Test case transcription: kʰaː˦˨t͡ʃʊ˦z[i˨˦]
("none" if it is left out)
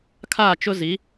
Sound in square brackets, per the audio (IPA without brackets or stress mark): i˨˦